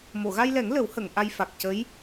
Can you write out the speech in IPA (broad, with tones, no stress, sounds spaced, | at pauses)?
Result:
m o˨˩˨ ɣ a˧ j l ɛ˨˩˦ ŋ l ə˨˩˦ w h ə˨˩˨ ŋ ʔ a˧ j f a˨˩ k̚ c ə˧˥ j